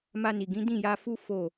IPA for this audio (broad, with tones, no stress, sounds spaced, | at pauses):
m a˧ n i˨ ɡ ĩ˨˦ d ĩ˦˨ j a˧ f u˦ f o˦˨